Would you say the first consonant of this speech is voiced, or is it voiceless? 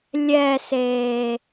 voiced